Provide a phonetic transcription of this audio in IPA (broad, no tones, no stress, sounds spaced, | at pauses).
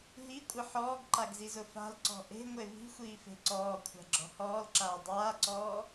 ɦ i kʷʼ ɪ ħ ɔː ɡ ǃ a ɡ z i z ʊ f a̤ l ǀ ɔ̤ ʔ e̤ ŋʷ e v i̤ xʷ iː f e̤ ǀ ɔː kʷʰ a̤ ɡ͡ǁ ɔ̤ h ɔː l ǁ aː dˤ aː ǀ ɔː